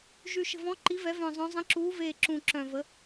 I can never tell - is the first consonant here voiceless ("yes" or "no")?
no